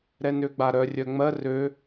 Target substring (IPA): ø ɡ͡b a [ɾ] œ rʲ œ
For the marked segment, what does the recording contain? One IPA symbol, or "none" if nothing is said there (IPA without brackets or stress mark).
ɾ